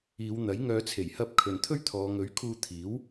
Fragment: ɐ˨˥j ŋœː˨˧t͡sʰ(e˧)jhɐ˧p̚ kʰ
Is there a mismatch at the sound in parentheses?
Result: yes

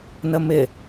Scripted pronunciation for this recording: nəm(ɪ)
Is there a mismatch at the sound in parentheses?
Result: no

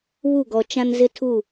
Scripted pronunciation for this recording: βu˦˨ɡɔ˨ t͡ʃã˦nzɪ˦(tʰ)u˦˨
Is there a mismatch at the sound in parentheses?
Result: no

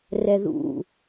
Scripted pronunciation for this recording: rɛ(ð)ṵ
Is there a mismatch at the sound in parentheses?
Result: no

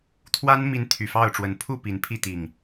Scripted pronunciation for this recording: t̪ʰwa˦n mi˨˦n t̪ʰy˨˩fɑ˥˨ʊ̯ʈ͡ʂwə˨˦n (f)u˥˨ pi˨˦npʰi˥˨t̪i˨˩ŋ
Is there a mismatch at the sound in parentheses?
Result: yes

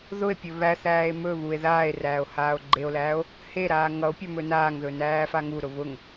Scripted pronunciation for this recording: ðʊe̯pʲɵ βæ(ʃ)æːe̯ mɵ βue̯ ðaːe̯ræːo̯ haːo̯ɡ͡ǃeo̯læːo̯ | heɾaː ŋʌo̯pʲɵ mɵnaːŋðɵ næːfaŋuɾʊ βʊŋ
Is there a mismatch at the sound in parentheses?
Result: yes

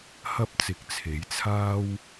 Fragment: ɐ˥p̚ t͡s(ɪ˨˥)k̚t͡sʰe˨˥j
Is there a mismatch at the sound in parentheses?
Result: no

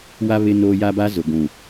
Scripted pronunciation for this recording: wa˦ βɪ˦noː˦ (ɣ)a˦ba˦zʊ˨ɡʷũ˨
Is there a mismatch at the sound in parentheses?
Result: yes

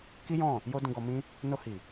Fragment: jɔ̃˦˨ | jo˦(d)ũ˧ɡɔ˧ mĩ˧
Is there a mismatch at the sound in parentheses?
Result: no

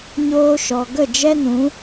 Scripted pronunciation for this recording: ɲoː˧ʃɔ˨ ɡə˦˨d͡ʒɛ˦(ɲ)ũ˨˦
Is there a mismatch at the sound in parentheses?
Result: yes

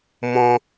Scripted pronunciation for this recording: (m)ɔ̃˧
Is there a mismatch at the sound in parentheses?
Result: no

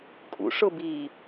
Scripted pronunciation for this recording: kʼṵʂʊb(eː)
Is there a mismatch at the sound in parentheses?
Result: yes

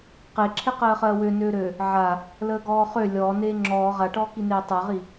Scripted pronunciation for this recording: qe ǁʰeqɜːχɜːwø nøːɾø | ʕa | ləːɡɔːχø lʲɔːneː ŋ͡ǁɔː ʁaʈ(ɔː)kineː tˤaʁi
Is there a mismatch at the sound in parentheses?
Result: no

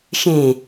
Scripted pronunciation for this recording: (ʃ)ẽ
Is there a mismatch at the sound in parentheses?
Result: no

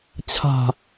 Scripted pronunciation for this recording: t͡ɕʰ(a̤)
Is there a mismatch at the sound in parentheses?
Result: no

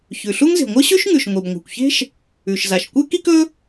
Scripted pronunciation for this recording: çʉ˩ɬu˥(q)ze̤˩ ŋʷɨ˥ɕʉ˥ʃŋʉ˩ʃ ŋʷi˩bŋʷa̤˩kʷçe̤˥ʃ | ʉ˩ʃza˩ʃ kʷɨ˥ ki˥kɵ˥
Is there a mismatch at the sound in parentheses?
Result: yes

